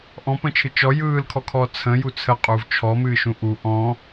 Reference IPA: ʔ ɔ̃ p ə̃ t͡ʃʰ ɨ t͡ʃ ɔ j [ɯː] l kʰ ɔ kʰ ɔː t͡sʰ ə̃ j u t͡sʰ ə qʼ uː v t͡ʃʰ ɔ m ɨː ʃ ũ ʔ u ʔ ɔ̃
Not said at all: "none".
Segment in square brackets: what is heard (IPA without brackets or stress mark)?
ɯː